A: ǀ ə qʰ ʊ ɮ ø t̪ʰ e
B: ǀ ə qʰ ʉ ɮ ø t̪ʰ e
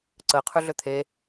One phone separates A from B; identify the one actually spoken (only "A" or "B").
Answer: B